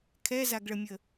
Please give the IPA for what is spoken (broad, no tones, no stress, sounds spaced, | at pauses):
kʰ ɛ z a ɡ ɭ ə mʲ ə